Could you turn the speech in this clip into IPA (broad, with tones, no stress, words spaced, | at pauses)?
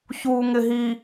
çuː˨ŋɪ˨ɦi˨